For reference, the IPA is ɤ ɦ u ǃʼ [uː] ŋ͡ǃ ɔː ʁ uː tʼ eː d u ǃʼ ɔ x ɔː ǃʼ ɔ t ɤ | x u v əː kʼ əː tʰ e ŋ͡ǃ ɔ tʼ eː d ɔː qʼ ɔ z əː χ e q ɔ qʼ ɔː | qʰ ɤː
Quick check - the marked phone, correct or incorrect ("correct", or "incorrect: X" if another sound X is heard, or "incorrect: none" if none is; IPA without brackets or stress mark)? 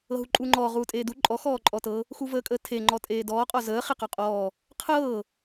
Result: correct